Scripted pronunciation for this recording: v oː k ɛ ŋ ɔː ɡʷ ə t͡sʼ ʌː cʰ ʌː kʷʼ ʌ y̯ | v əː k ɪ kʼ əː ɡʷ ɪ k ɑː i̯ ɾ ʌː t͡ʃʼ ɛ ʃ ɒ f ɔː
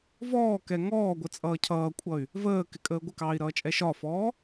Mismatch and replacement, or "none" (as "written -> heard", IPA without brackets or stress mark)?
oː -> ɔː